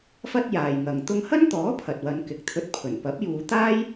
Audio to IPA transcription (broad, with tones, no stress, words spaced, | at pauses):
fɐ˥t̚jaː˨jŋɐ˨ŋ t̪ʊ˧ŋhɐ˥nt̪ɔː˨˥ pʰɐ˨t̚wɐ˨˧n kɪ˨k̚t̪ʰɵ˧t̚pʰɵ˨˩n pɐ˨˥p̚juː˨˧t̪aː˥j